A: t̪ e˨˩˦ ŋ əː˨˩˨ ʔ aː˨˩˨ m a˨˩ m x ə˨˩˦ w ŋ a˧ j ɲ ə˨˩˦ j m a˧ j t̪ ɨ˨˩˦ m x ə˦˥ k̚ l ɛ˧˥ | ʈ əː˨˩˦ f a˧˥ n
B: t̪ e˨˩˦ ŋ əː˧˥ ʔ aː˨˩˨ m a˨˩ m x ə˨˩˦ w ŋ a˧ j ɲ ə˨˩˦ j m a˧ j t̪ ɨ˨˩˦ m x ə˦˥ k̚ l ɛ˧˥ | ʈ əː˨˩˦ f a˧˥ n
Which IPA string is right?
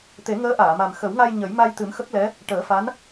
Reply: B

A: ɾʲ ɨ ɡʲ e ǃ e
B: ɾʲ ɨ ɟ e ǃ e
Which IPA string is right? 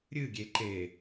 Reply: A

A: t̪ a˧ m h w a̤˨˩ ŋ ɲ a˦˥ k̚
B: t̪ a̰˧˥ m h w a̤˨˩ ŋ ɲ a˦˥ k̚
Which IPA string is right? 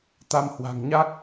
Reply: A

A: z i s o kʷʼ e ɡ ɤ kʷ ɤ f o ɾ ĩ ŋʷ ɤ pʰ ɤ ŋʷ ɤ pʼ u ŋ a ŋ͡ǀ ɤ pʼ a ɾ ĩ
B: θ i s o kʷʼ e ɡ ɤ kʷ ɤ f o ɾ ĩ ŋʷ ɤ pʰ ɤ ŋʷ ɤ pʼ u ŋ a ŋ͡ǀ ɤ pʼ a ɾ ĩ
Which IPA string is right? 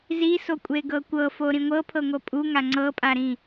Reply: A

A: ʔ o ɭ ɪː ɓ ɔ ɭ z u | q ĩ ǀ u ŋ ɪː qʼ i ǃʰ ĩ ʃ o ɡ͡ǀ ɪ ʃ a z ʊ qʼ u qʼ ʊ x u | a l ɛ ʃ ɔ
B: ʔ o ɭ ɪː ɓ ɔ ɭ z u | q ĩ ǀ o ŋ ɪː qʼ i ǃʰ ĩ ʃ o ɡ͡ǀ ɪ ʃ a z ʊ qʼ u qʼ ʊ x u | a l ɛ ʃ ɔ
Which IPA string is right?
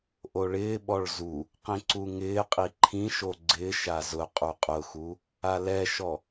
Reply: A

